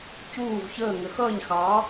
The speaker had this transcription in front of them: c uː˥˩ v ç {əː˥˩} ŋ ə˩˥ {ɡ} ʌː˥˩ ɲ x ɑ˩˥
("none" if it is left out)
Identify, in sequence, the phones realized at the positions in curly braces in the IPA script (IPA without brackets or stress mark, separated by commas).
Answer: əː˥˩, x